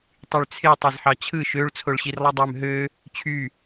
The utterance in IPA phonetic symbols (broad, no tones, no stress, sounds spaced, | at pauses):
tˤ y ɭ t͡sʰ e tˤ e z ħ ɑ t͡ɕʰ ɯ ʃ ø ɭ t͡sʰ o ɭ ɕ i r lˠ i dˤ ø m ɦ ø | t͡ɕʰ y